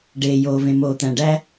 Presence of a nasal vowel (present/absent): present